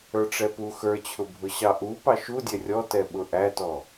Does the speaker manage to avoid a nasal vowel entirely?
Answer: yes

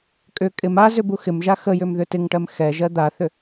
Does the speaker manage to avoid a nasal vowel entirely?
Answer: yes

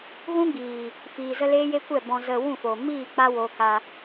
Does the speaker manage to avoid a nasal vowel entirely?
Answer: no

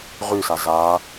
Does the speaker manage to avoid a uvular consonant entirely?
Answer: no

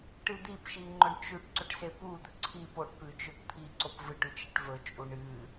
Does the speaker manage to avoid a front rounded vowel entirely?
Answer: yes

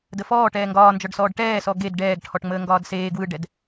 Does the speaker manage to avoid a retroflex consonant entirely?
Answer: no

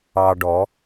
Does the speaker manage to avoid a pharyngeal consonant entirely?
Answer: yes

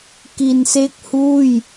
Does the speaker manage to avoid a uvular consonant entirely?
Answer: yes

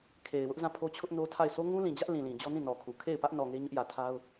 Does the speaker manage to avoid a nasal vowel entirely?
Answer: no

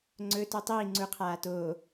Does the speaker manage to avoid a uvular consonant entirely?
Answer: no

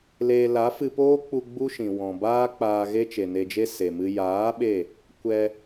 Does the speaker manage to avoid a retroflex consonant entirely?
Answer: yes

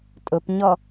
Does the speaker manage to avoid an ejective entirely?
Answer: no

